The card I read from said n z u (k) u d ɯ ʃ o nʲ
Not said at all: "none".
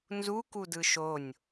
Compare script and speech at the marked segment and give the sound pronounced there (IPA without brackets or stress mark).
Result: k